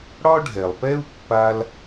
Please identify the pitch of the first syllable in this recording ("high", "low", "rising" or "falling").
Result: high